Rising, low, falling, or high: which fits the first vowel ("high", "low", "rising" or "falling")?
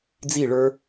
falling